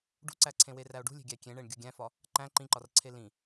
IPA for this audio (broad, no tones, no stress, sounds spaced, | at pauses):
ɖ ṳ ǀ æ ǀʰ ẽ w e r æ o̯ ɖ ṳ lʲ e̤ ɡʲ æ kʲ ẽ ɳ e ɳ ɡʲ u ɡʲ æ̃ f ɒ | ǃ æ̃ ǃ ĩ ǃ ɒ r ǀʰ e l ĩ